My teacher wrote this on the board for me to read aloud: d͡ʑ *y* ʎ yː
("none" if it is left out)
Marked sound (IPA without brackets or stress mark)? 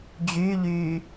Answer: y